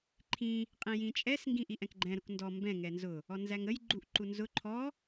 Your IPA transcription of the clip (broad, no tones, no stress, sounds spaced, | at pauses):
ǃʰ ĩ | qʼ ĩ j ĩ t͡ʃʼ ɛ s ŋ ɡ ĩ ʔ i ʔ ɛ̃ k ɡ͡ǃ ɛ̃ ɾ ʊ k n d ɔ m b ɛ̃ ŋ ɛ n z ʊ | ɔ n z æ ŋ ə j ɡ͡ǃ u ʔ ǃ u n z ʊ ǃʰ ɔ